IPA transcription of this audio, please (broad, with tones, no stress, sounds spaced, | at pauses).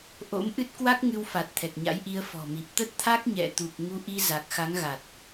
ʔ o̰˧˥ m ʔ ɨ˦˥ t̚ k w a˦˥ k̚ ŋ ɨ˧ w f a˨˩ t̚ t̪ʰ ɛ˨˩ k̚ ɲ a̰˧˥ j ʔ i˧ ə̯ f ɔ̤˨˩ m i˨˩ p̚ t̪ ə˦˥ t̚ t̪ʰ a˦˥ k̚ ɲ ɛ̰˧˨ t̪ u˨˩ p̚ ŋ u˧ ʔ i˧ z a˨˩ k̚ x a˨˦ ŋ ɣ a˨˩ t̚